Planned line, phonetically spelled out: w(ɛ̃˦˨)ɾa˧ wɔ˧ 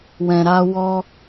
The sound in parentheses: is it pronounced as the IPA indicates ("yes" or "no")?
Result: no